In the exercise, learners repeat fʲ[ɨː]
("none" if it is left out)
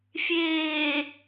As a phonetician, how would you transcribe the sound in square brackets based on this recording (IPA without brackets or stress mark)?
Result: eː